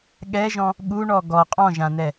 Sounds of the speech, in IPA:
ɠ ɛ ʒ ɔ̃ | ɠ u ɳ ɔ ɡ ɔ qʼ ɔ̃ ʒ ã n̪ ɛ

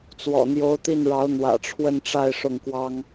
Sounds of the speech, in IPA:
t͡s w ɔ̰˨˩ n̪ j o˧˥ ʊ̯ t̪ i˥˩ n ɻ ɑ˧˥ ʊ̯ n̪ w ä̰˨˩ ʈ͡ʂʰ w ə˥˧ n ʈ͡ʂ a˥˧ ɪ̯ ʂ ʊ˥˩ ŋ k w ɑ˥ ŋ

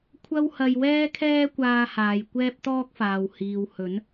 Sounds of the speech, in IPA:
kʷʰ ɐ˥ w h ɐ˧ j w ɛː˥ kʰ ɛː˥ kʷ aː˧ h aː˨ j kʷ ɛː˥ p̚ t̪ ɔː˥ k̚ f aː˨ w h iː˨ w h ɵ˨˥ n

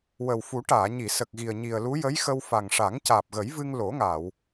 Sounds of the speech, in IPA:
w ə˨˩ w f u˨˩˦ ʈ aː˨˩˨ ɲ i˨˩˨ s ə˨˩ k̚ ɣ i˨˩ ə̯ ɲ i˨˩ ə̯ l u˧˥ j ə˧˥ j x ə˧ w f a˨˩ ŋ ʂ a˨˩˦ ŋ c aː˨˩ p̚ ɣ ə˨˩˦ j v ɨ˧ ŋ l o˨˩˦ ŋ aː˨˩˨ w

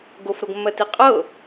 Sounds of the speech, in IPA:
ɡ o f ɾ o ɡ mː ɜ t i qʼ ɤ

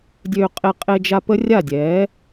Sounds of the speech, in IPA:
dʲ øː˧ qʼ e˧ qʼ e˧ d͡ʒ a˧ p ə˦ rʲ a˦˨ dʲ ɛː˨˦

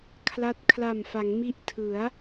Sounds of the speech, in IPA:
kʰ l a˦˥ t̚ kʰ l a˨˩ m f a˩˦ ŋ m i˦˥ ʔ tʰ ɯ˩˦ a̯

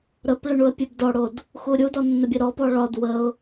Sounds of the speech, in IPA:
ɾ ə p ɭ ə ɳ u ə̯ pʲ ɛ b d ɔ ɽ o d | x u ɾʲ u d ɔ nː ə bʲ ɛ ɾ ɔ p ɔ ɭ ɒ d w ə ʊ̯

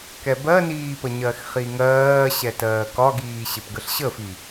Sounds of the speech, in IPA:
k ɛ b ɜ n iː p ə ɲ ɜ x χ i ŋ ɜː ɕ ɛ t ɜː k ɒ ɡ iː ɕ ɪ p ɡ ə ɬ ɕ ə f i

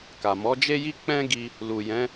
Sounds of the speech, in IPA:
k a˨ m ɔ˨˦ d͡ʒ e˦ j i˦ k͡p ɛ̃˦ ɡ i˧ | l u˨ j ɛ̃˨˦

